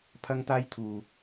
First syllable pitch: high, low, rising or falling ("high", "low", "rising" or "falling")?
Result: high